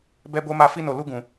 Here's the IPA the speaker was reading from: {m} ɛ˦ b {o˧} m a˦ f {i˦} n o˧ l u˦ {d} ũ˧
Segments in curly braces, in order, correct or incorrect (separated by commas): incorrect, incorrect, correct, incorrect